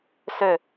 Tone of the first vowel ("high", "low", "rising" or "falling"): falling